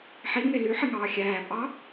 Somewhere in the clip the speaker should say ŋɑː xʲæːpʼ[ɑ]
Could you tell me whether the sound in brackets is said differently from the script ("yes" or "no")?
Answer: no